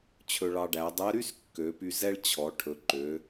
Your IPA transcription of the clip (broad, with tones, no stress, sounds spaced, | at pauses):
t͡ɕʰ ɵ˧ ɭ ɑ˧ ɖ æ˩˧ dˤ ɛ˧˥ ɾ y˥ s kː ø˩˧ p y˧ z ɛ˥ ɭ t͡ɕʰ ɔ˩˧ ʈʰ ɵ˩˧ ǃ ø˩˧